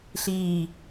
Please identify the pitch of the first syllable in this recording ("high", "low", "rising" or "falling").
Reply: low